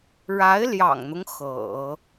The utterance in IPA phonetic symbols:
ɻa˧˥ɪ̯ljɑ̰˨˩ŋn̪ʊ˦ŋ xɤ̰˨˩˦

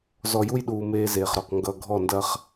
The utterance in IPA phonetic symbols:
zɔ˨ju˦jɗuː˨ meː˦zeː˨χɾɔ˨q ŋɡʌ˨ ɡʱɔ˦˨ndɐ˦χ

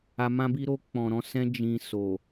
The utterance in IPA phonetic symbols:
a˨mã˧bi˧ɾo˧ k͡pɔ̃˨ɾɔ̃˧ sɛ̃˦d͡ʒĩ˧ so˨

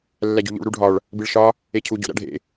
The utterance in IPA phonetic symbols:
lːæɟo̤ʎṵɭ ɾuɖʱɒɭ | biɭʃɒ | ecʰu ɟo̰ɾæ̰ɖʱḛ

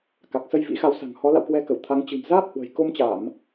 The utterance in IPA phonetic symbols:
ka˨˩k̚sə˧jvḭ˧˥xa˨˦w sa̤˨˩ŋhɔ˨˦ la̰˧˨wkwɛ˧kə˧˩w t̪ʰa˨˦ŋ t͡ɕɨ̤˨˩mzaː˦˥p̚ hwə̤˨˩jko˧mt͡ɕa˧˩˨m

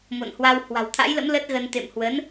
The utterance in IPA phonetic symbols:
mo̰˧˨nhwa˧w hwa̤˨˩wt̪ʰa̰˧˥jlə̰˧˥m lə˦˥t̚ɣə˧n t̪ḛ˧˨mhwə˨˦n

